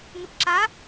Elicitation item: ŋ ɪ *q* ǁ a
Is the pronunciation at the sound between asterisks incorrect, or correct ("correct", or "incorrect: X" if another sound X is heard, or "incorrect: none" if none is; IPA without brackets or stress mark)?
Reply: incorrect: p